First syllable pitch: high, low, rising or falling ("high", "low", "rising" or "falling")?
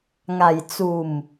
low